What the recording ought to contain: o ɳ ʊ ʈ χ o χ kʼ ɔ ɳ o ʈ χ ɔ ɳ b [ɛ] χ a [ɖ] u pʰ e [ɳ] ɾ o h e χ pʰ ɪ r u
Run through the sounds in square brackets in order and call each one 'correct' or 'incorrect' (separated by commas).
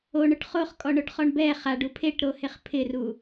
correct, correct, incorrect